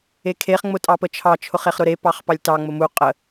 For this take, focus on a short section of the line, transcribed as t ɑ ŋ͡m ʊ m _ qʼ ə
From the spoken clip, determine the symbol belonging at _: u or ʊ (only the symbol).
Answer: u